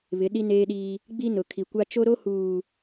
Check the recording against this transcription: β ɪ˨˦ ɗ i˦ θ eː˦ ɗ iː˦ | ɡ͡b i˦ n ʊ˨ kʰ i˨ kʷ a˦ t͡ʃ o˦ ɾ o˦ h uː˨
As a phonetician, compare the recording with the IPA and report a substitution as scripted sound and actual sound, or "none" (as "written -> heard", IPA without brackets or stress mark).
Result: θ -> n